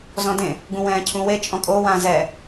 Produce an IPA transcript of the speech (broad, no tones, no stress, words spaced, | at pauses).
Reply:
zɔ̃dẽ | ɡũwɛ̃ːcʰũwe t͡ʃʼɔ̃kʼo wãzɛ